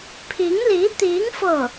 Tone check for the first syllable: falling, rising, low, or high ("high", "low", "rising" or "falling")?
rising